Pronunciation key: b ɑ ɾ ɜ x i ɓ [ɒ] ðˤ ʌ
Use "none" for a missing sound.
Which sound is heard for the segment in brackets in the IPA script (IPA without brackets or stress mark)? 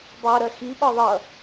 ɒ